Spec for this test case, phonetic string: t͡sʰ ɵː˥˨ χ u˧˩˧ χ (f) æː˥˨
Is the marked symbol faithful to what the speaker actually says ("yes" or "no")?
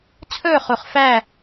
yes